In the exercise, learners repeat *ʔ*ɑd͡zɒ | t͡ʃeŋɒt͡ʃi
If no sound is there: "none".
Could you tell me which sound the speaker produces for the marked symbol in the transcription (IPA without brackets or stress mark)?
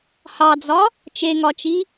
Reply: h